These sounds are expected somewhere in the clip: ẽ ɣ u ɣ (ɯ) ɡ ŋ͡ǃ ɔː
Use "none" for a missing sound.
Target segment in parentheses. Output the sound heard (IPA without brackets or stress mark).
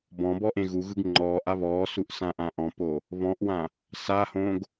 ɯ